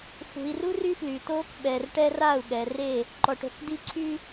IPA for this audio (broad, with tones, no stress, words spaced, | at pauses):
fṳ˨i̯ru˦ ry˦fly˨toː˦k ɓɛ˨r ʈɛ˦ra˦˨u̯ ɠɛ˨re˦˨ | ǃɔ˨ʈ o̤˨kdi˦ǀʰy˦